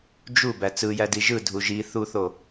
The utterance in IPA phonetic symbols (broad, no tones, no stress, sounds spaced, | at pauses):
d͡ʒ u b æ t͡s ɯ j æ d i ʒ ɯ dʱ u ʒ i θ u θ o